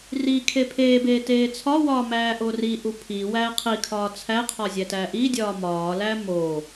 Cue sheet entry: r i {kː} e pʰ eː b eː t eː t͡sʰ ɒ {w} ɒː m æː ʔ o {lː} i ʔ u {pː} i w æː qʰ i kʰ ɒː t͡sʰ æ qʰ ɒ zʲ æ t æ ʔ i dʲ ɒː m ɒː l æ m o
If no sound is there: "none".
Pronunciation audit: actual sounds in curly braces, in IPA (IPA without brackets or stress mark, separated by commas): kʰ, w, r, pʰ